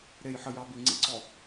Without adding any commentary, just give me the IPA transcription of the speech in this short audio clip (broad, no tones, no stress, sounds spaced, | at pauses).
ɾ e j ħ ə j ɑ b i ŋ͡ǀ ḭ ǀ ɔ